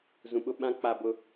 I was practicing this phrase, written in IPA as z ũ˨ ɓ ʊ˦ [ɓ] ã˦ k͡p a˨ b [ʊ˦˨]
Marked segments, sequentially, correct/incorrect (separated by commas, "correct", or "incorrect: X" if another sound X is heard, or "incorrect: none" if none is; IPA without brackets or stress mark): correct, incorrect: ʊ˨